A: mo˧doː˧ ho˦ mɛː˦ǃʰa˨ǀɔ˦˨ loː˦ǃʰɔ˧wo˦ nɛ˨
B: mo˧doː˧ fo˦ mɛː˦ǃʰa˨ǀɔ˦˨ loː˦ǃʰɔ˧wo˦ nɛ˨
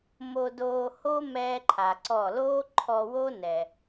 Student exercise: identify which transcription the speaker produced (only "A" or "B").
A